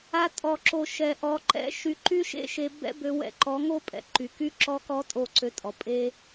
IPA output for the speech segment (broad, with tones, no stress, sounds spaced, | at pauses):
a˧ tʼ ɔ˨ ǁ o˨ ʃ ɛ˨ ʔ ɔ˨˦ ǃ ɛ̰˦ ʃ y˧ ǃ y˦ ʃ ḛ˦ ʃ e˧ b ɛ̰˦ b ø˧ w ɛ̰˧ ǃ ɔ˨˦ ŋ o˦ pʼ ɛ̰˨ ǃ y˨ k y˦ ǁ ɔ˧ k ɔ˧ tʼ o˦˨ ǀ ø˧ tʼ ɔ˨ pʼ e˦